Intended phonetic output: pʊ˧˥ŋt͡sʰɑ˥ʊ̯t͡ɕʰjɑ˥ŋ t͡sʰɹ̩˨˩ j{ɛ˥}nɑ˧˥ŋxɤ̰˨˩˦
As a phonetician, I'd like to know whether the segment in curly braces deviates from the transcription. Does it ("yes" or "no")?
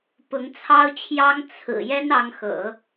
no